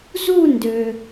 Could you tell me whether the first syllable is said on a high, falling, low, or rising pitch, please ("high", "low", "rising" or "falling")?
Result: falling